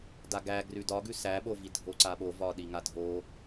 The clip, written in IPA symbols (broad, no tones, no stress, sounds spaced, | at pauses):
d a ɡ æ ɡ r ʉ d ɒ ɡ ʉ s æ ɓ o v i dʱ o ǀ a ɓ o v ɒ ɗ i ŋ a dʱ o